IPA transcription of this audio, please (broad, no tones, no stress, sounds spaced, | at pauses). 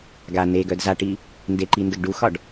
ɡ a n e ɡ œ d z a ʈ i | n d e ǃ i n d ə ɡ ɖ u x ɒ ɖ